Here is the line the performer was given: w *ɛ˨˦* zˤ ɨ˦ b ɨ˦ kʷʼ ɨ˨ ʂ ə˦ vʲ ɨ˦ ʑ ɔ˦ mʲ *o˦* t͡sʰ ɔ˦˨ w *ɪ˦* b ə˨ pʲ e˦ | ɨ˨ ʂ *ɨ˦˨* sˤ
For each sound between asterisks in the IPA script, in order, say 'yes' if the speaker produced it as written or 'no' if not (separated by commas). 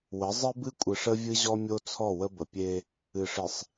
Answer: no, yes, no, no